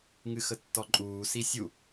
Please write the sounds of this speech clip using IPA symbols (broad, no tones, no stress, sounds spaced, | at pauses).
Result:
ŋ ɨ x ə tː ɔ ǃʼ uː s i sʲ u